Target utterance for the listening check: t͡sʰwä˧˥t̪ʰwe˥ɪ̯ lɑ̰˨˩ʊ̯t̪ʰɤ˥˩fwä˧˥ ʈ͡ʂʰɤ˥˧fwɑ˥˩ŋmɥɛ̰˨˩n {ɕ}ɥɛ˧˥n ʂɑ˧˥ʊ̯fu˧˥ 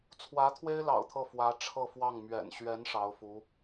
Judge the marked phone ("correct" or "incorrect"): correct